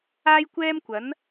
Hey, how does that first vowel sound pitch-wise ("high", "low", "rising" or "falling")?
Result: high